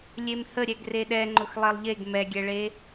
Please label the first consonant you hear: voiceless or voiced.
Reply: voiced